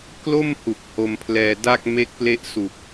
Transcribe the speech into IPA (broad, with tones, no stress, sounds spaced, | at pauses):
k l o˥˩ m h u˨˩ k̚ h o˧ m pʰ l ɛː˧ d a˥˩ k̚ m e˦˥ k̚ p l e˦˥ ʔ s u˨˩ k̚